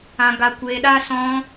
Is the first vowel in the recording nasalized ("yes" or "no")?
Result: yes